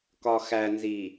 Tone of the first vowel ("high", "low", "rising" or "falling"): low